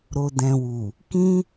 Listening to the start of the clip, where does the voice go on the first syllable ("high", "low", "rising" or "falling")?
low